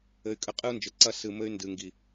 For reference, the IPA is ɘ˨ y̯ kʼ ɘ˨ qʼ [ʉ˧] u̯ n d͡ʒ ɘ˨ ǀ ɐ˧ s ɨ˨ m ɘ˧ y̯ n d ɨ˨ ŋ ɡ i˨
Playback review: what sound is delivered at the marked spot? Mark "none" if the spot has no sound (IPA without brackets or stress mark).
ɨ˧